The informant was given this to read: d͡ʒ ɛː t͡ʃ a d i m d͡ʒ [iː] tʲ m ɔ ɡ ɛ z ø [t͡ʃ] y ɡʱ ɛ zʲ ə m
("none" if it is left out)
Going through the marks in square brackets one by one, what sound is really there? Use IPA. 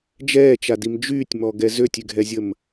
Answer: yː, tʲ

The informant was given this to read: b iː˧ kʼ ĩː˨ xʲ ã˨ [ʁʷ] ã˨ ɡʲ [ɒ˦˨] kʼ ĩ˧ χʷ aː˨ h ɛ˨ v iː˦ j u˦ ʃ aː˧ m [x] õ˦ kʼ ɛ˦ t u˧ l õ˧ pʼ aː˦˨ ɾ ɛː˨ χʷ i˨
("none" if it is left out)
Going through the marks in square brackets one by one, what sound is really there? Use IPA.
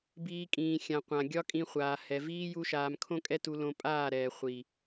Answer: qʷ, ɒ˦, kʰ

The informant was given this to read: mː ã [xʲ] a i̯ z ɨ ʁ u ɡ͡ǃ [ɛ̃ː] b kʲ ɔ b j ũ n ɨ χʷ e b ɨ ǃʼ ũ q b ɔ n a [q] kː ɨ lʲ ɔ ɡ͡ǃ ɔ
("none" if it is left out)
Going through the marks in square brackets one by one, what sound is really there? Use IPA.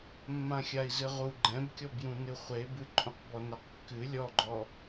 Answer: xʲ, ɛ̃, q

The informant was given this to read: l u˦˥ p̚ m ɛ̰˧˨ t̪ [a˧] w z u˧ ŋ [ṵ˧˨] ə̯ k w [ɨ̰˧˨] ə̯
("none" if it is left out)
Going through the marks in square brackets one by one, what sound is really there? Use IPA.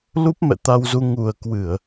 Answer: a˧, u˨˩, ɨ˧˩˨

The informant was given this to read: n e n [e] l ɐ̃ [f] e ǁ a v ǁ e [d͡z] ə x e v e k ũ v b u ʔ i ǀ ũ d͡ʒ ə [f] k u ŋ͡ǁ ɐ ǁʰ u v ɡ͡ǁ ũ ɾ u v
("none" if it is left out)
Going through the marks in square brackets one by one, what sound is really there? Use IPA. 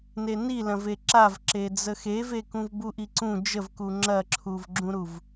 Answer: i, v, d͡z, v

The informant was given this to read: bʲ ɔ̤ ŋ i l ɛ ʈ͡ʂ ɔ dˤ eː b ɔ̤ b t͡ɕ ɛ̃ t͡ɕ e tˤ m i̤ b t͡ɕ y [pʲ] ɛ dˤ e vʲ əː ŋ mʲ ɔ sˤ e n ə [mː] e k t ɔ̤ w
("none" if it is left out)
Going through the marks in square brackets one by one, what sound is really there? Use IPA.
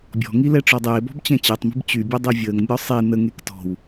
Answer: bʲ, ŋ

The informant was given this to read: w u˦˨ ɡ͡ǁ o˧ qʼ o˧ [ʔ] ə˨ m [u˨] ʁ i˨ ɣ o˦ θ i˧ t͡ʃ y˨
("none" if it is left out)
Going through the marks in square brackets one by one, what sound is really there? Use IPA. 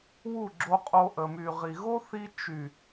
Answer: ʔ, y˨

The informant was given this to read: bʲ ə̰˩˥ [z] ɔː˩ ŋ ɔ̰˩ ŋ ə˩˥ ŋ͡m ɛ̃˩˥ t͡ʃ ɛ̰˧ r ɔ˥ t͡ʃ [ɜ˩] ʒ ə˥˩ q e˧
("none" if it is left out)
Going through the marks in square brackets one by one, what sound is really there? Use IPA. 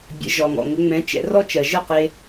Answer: ʒ, ɜ˩

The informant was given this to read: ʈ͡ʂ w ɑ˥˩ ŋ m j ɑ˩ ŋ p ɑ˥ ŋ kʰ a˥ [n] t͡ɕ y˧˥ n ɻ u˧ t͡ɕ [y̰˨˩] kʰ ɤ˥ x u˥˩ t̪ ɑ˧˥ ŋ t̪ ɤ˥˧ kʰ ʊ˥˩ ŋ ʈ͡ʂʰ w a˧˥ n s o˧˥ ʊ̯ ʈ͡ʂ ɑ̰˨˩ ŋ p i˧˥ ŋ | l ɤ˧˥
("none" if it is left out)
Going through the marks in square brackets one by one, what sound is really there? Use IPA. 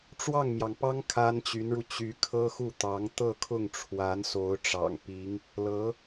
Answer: n, y˧˥

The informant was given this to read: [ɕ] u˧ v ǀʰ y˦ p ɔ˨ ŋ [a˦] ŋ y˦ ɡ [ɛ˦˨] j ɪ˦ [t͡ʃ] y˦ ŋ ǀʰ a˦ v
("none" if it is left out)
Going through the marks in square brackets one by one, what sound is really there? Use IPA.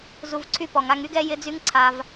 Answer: z, a˧, ɛ˦, d͡z

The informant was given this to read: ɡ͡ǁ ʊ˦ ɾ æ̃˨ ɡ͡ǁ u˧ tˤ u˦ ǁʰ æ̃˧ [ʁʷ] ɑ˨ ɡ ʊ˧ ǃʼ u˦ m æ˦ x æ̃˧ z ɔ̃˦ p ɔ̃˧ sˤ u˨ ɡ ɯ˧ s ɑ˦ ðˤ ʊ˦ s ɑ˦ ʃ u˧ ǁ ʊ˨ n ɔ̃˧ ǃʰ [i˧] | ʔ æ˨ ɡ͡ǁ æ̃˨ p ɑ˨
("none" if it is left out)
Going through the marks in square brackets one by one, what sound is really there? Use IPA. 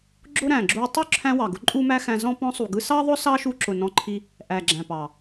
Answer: w, i˧

